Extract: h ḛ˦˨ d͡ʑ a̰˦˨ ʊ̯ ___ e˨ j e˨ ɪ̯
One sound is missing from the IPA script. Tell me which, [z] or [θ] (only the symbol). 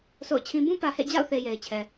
θ